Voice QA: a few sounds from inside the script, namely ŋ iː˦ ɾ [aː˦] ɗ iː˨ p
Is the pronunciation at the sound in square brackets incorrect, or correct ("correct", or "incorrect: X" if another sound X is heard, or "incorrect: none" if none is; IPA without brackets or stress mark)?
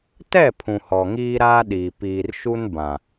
correct